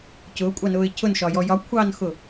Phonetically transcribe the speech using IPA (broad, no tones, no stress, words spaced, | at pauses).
cʊːkʷʼɑnʊːɪ̯ cʰʊnʃɒjɔ jɒkʷʰɑːnxʊ